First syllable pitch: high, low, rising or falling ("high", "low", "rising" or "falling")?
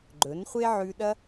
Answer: rising